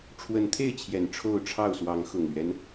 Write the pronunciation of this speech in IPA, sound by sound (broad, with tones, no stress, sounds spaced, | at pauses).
ʈ͡ʂʰ w ə˨˦ n t̪ʰ e˥˨ ɪ̯ t͡ɕʰ j ɛ˨˩ n ʈ͡ʂʰ o˥˨ ʊ̯ ʈ͡ʂʰ ɑ˥˨ ʊ̯ s w ɑ˨˦ ŋ x ʊ˨˩ ŋ l ɥ ɛ˦ n